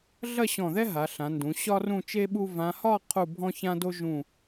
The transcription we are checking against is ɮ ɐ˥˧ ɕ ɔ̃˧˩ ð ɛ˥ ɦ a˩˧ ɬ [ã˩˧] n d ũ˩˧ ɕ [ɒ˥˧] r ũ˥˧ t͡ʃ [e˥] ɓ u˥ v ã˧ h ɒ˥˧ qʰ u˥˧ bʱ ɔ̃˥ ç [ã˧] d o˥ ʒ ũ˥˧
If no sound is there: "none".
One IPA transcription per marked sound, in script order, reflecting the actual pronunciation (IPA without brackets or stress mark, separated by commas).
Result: ã˩˧, ɒ˥, e˥, ã˥